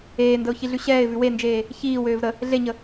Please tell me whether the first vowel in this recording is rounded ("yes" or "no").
no